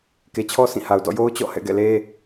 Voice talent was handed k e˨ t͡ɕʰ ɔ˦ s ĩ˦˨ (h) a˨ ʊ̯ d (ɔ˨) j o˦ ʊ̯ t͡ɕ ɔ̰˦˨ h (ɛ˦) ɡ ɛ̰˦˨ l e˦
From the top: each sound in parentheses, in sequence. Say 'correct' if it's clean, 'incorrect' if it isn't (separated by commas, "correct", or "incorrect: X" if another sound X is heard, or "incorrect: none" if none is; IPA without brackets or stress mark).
correct, incorrect: ɔ̰˦˨, incorrect: ɛ̰˦˨